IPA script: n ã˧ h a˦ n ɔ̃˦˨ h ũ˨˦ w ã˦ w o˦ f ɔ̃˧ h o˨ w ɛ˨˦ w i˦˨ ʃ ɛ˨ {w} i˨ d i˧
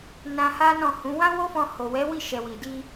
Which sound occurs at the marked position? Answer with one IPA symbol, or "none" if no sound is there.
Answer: w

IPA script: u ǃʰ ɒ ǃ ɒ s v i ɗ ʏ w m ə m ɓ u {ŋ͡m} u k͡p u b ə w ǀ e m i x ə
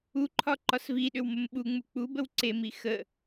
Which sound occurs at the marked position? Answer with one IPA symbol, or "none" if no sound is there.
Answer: ŋ͡m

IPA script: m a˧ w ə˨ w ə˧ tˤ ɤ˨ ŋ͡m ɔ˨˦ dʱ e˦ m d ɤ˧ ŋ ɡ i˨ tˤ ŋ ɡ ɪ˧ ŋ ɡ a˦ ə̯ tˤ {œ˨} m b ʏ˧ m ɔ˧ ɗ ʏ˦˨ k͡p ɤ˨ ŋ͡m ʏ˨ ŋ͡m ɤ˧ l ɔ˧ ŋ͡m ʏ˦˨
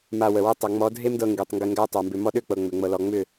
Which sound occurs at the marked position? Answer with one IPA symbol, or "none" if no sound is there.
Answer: œ˨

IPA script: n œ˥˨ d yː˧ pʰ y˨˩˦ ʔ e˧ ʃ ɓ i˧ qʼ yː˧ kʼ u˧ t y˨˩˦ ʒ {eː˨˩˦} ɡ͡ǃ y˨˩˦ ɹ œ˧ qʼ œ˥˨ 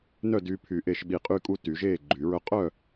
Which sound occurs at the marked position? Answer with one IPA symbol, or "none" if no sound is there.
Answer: eː˥˨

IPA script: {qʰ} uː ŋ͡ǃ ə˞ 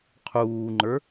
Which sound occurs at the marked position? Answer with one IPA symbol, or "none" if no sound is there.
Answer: qʰ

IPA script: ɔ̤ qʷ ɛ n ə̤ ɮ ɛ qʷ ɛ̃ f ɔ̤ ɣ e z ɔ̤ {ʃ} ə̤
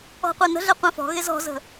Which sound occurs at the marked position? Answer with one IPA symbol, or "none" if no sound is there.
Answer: z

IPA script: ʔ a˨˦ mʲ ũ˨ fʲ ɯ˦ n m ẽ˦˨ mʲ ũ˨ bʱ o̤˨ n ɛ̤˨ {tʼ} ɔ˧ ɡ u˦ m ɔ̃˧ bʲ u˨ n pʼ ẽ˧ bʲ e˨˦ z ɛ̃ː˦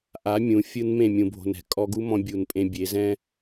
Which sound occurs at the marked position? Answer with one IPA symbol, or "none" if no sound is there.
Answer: kʼ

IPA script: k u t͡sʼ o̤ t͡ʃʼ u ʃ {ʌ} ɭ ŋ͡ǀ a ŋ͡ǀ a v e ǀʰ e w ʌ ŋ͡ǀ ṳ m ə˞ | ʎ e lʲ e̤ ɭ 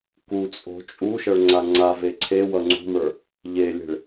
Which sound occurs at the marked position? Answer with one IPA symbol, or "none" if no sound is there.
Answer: ʌ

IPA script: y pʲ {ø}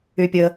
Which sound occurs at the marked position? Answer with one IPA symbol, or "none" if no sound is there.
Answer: ə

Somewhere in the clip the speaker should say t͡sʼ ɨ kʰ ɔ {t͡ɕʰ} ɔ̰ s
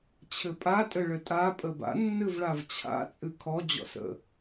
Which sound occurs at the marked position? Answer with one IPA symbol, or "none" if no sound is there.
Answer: d͡ʑ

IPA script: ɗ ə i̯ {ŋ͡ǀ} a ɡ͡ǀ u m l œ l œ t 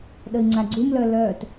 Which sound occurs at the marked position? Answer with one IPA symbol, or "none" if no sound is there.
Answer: ŋ͡ǀ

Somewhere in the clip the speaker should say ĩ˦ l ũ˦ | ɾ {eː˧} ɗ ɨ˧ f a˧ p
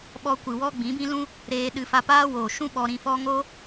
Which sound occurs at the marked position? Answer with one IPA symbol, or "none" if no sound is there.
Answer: eː˧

